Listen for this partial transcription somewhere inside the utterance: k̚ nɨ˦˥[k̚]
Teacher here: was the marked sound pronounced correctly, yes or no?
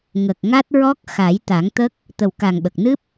no